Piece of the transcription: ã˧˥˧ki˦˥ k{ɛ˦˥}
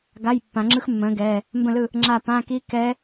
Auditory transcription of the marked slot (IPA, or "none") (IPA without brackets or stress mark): ɛ˦˥